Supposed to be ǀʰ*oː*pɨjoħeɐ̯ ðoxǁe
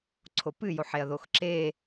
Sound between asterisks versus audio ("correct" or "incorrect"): incorrect